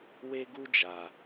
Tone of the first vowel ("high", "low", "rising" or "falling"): high